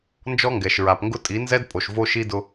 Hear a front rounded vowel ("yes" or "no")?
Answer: no